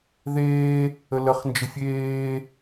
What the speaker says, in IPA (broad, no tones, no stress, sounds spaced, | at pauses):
ð eː | ə l ə χ n d͡ʒ ə fʲ eː